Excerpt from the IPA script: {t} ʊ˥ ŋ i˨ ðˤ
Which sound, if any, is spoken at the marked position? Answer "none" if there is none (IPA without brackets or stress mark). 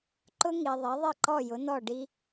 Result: ǃ